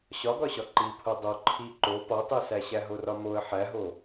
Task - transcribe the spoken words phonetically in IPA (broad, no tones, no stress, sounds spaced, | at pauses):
ɕ ɒ ɡ ɒ ɕ ɒ ǃ i pʰ o dˤ o ǃʰ i ǃ o p ɒ tˤ i s æ ɕ æ ɦ o r ɒ m o ə̯ ħ æ ɦ o